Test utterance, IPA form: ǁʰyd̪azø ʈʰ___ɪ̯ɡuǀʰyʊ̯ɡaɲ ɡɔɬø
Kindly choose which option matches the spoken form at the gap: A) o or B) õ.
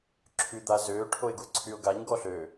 A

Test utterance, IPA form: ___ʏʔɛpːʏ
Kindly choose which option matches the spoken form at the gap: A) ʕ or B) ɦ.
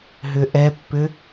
B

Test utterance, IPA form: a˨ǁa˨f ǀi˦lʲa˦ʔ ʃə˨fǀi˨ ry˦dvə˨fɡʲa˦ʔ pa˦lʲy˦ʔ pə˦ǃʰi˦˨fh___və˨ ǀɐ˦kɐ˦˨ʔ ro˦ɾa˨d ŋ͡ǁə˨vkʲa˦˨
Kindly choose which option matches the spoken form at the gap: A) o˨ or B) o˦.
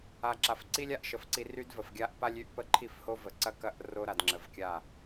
B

